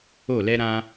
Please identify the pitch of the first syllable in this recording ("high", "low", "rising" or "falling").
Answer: falling